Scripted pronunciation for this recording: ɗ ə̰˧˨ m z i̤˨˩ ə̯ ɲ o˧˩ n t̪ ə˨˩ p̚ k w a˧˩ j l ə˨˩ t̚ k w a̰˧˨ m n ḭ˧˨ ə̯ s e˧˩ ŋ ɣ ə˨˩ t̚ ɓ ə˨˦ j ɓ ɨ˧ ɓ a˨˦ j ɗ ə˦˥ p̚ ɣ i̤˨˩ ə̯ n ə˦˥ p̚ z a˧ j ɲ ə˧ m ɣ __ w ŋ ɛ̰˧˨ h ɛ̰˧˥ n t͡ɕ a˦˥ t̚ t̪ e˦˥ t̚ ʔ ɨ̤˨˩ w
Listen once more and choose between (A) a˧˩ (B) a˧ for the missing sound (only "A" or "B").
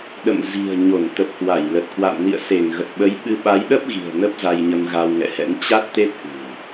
B